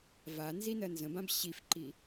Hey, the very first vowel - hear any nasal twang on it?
no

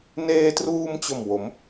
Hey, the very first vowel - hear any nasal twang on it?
no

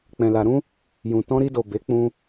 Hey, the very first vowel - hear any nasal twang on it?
yes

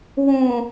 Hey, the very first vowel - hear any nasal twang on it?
yes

